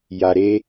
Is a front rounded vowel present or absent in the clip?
absent